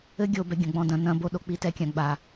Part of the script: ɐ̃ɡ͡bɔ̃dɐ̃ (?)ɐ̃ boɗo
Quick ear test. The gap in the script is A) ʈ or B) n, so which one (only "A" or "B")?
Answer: B